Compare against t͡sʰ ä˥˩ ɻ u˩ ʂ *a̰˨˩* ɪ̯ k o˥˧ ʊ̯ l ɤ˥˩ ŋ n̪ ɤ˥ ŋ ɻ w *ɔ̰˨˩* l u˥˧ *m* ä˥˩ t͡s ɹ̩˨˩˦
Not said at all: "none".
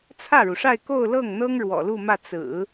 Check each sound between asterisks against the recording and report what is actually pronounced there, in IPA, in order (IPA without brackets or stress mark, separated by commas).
a˥˧, ɔ̰˨˩, m